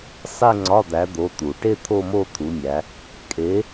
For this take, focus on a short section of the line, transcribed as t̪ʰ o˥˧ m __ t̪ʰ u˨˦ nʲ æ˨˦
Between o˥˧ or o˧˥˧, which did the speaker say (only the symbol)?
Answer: o˥˧